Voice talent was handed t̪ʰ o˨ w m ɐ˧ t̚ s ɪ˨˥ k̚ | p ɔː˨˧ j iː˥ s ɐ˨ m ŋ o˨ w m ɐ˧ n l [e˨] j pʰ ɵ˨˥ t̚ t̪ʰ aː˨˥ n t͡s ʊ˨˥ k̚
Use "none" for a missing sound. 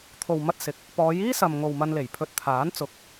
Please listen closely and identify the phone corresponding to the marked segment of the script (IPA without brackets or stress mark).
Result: e˨˩